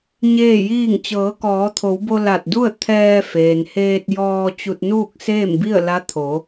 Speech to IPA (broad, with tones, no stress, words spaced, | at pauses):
ɲeː˥˨jiː˥˨ŋ t͡ɕɤː˩˧kɔː˩˧t̪ʰo˩˧wbo˧ la˧˩t̚du˥˨ə̯ t̪ʰɛː˧feː˩nheː˧t̚ jɔː˧ t͡ɕu˧t̚nuː˥˨k̚seː˥˨mbi˥˨ə̯ la˧˥t̪ʰo˩˧